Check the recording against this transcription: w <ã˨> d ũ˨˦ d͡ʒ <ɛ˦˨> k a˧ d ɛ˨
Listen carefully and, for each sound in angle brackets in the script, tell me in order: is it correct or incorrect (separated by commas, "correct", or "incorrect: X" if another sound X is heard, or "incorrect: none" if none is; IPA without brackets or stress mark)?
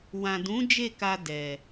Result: correct, incorrect: e˦˨